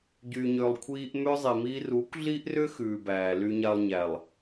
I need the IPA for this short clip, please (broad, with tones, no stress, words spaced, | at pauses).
ɟyː˨ɲʏː˨lˠ kʷʰiː˨ʔ mʏː˦zˤi˨miː˦ ru˨˦kʷɮi˦ʔrʏ˦ xʉː˨bæː˨ ly˨ɲa˨lˠ ɲæ˨lˠ